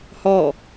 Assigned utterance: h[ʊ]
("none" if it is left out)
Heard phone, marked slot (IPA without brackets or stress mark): ɔ